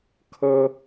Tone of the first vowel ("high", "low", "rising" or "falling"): high